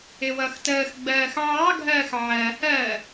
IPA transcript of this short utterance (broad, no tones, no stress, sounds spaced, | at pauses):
ɪ w ʌ x t əː x ɡ͡b ɜː x ʕ ɑ ɡʱ ɜː x ʕ ɜ h ɜː